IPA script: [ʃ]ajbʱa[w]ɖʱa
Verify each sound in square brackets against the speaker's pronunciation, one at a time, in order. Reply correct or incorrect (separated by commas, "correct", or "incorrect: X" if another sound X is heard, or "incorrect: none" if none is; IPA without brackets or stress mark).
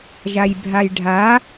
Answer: incorrect: ʒ, incorrect: j